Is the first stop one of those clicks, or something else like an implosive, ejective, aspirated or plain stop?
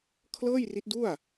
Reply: aspirated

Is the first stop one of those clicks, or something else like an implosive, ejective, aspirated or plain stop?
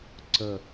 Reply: click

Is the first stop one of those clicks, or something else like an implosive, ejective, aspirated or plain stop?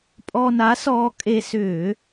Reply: ejective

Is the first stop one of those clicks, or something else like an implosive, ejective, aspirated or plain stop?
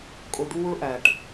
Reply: ejective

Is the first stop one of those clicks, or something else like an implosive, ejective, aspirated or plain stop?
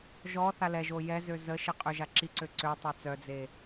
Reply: ejective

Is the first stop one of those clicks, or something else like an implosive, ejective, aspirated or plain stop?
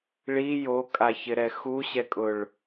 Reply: ejective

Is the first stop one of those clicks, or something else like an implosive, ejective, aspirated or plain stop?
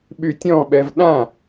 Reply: implosive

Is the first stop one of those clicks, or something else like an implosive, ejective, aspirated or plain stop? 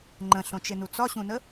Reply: click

